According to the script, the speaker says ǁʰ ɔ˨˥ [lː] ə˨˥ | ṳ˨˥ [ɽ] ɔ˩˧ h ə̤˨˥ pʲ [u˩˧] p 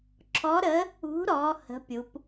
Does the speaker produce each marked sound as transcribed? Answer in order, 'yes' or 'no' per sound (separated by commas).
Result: no, no, yes